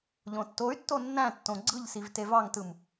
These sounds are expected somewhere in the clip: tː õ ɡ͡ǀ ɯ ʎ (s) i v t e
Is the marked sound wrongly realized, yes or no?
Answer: no